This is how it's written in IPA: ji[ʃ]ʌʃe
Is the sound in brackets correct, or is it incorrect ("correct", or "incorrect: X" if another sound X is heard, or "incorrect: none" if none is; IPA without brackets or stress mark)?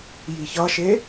incorrect: ç